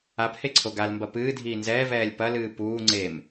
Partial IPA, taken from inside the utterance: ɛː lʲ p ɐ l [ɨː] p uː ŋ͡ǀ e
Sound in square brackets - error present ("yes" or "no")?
no